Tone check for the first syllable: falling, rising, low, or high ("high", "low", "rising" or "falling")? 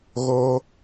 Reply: high